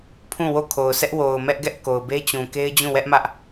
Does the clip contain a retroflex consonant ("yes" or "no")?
no